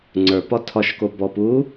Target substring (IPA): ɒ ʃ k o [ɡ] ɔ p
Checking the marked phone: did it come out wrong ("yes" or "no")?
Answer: yes